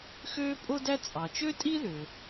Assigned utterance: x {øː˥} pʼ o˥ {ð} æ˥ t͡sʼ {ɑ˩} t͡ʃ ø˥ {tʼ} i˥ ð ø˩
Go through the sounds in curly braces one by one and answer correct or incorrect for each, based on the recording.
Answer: correct, incorrect, correct, correct

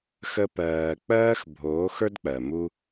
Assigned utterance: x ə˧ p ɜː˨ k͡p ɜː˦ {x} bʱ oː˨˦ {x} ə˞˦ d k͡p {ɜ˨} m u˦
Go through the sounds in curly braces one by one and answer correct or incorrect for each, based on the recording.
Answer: correct, correct, correct

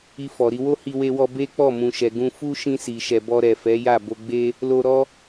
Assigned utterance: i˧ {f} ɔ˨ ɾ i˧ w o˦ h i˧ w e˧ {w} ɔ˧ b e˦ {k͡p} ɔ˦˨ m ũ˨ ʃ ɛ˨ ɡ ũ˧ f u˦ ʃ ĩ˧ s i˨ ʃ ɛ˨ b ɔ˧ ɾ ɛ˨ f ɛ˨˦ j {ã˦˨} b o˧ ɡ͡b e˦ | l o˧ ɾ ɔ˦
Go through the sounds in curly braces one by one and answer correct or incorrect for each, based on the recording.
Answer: correct, correct, correct, incorrect

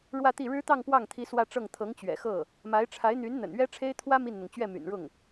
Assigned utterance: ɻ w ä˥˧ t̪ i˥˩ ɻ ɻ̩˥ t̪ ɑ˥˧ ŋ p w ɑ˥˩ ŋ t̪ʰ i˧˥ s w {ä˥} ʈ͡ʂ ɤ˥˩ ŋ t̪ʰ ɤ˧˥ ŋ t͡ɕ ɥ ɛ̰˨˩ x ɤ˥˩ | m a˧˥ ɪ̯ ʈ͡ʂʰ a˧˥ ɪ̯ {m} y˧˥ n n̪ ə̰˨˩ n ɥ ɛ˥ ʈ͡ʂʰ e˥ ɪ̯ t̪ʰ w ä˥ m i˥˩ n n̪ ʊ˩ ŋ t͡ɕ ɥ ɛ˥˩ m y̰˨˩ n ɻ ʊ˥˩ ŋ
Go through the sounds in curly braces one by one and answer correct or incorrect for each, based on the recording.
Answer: incorrect, incorrect

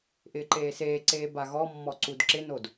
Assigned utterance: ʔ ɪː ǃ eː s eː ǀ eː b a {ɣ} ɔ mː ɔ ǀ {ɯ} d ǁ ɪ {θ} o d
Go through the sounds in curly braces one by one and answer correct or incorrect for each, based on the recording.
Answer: correct, incorrect, incorrect

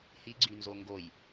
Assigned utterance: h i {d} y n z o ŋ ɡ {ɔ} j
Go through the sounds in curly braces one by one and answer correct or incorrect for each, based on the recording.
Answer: incorrect, incorrect

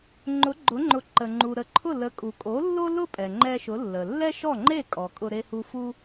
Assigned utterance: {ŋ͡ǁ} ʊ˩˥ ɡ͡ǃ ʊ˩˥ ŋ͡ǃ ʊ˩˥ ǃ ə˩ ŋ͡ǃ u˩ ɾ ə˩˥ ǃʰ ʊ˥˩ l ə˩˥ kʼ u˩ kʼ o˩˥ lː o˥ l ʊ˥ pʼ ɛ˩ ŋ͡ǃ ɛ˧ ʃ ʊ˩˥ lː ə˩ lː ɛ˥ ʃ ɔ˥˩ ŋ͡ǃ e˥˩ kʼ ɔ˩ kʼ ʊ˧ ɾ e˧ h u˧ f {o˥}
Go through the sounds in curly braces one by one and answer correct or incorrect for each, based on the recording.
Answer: incorrect, incorrect

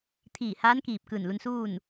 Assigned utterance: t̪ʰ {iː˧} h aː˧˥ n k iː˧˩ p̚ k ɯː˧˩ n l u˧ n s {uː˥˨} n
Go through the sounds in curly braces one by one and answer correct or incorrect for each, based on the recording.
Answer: incorrect, correct

